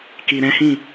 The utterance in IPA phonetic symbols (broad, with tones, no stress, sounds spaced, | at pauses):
k i˨ ɾ ɛ̃˨˦ h ĩ˦˨